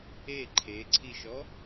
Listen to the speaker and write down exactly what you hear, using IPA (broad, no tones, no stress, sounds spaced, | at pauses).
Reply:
e ǃʰ e ǀʰ i ʃ ɔ